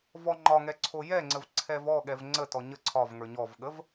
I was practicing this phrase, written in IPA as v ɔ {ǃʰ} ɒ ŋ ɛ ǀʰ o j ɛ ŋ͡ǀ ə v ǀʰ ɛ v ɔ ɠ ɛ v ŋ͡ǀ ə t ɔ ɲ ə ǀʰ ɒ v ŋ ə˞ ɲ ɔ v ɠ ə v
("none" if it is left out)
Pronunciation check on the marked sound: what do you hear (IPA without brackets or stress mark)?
ŋ͡ǃ